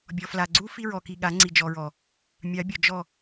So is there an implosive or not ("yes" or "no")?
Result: yes